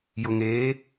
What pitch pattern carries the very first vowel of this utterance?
low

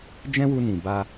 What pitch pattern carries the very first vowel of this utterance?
high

